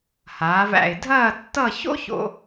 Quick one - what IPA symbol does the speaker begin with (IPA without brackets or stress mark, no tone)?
h